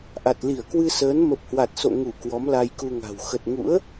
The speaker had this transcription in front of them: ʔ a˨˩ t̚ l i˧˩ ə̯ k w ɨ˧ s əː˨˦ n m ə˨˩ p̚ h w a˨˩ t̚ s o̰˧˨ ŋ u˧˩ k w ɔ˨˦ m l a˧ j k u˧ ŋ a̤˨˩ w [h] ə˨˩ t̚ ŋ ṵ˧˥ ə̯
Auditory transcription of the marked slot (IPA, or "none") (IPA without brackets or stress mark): x